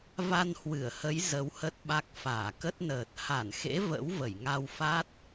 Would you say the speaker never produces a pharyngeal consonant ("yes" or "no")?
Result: yes